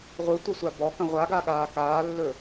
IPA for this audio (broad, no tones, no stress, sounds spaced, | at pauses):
ʁʷ ɯ tʷ ə sʷ a b ɔ k ə̃ ʁʷ a ɡ a ɠ aː k aː lː ɵ